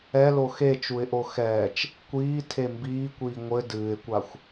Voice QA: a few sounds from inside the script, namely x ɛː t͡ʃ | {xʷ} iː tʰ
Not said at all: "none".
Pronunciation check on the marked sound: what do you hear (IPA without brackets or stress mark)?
kʷ